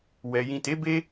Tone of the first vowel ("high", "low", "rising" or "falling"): low